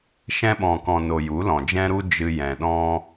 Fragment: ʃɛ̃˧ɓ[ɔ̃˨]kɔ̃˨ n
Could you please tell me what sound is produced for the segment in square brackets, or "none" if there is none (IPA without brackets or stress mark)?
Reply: ɔ̃˨